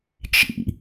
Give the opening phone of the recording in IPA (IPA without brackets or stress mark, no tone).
t͡ʃ